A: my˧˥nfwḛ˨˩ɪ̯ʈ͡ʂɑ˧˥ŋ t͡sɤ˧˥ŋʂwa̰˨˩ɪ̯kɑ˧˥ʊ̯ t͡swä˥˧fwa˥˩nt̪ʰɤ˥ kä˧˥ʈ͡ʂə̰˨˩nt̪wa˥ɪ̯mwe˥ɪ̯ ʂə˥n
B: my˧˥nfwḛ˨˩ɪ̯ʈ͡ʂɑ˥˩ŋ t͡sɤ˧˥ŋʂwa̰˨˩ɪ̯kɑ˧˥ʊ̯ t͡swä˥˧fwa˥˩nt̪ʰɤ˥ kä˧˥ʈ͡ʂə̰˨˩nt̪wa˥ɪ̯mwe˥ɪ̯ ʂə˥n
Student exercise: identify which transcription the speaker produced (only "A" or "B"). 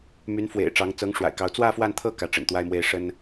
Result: A